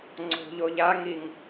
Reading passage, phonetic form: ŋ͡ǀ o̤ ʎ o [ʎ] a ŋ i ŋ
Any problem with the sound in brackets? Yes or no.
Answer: no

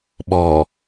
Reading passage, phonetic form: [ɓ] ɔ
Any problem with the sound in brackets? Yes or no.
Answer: no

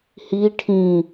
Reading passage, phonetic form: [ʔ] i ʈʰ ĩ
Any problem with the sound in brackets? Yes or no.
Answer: yes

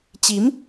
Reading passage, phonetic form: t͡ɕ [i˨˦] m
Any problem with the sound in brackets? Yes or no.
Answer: no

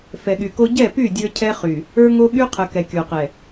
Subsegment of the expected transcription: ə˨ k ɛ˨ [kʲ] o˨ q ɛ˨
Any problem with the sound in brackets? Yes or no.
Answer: no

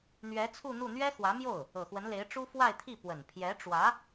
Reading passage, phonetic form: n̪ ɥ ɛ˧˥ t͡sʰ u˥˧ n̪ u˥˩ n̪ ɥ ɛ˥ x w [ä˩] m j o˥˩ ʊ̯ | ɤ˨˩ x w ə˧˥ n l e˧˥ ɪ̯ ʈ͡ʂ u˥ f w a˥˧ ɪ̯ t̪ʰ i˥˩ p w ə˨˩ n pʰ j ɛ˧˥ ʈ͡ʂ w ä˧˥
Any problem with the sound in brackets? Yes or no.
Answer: yes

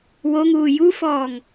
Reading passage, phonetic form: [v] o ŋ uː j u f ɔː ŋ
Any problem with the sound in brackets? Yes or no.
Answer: yes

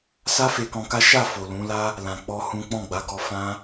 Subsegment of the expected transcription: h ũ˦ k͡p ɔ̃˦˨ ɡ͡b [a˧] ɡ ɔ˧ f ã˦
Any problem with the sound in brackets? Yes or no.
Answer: yes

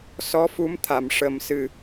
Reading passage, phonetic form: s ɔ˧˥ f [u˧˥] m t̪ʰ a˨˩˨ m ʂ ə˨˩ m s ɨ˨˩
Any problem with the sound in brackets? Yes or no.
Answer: no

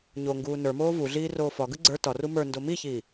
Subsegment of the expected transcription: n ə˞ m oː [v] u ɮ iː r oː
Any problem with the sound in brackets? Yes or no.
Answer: no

